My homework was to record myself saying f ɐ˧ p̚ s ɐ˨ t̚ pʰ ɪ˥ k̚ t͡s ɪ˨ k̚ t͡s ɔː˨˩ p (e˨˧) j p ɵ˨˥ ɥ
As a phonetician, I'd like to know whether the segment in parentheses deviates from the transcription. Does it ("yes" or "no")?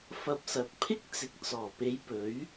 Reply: no